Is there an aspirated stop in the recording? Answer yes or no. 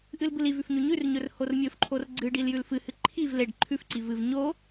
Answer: yes